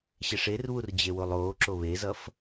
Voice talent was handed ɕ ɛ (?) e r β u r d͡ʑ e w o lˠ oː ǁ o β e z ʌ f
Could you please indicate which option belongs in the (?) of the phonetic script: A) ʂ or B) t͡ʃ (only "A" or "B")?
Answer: A